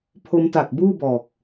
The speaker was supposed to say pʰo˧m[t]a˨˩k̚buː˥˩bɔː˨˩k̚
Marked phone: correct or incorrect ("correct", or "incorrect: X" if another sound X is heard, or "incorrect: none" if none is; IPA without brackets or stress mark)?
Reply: correct